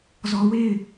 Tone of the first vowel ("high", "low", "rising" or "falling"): low